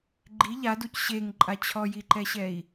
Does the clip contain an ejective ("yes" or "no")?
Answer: yes